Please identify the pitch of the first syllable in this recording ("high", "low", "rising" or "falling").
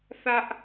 high